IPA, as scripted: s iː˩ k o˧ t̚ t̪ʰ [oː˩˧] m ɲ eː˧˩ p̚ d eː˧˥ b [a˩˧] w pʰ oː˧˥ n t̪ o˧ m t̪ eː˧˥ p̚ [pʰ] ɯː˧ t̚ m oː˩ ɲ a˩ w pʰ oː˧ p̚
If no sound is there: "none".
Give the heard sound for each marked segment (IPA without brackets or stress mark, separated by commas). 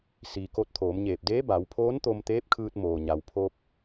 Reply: oː˩˧, a˩˧, kʰ